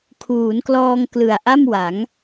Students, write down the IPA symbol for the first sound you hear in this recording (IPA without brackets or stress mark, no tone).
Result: kʰ